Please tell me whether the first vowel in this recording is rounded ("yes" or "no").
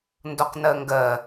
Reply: yes